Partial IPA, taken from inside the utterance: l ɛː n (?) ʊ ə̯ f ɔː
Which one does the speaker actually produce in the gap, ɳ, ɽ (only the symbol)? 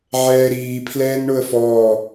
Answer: ɳ